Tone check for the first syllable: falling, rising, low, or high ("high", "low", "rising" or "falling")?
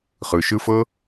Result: low